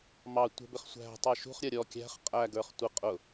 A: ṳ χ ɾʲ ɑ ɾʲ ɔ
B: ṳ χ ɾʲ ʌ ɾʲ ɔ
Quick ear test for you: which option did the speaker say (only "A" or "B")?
B